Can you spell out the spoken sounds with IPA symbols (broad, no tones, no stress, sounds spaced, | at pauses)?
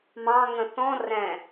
m ɑ̃ ŋ ə̃ θ ɔ̃ r ɛ̃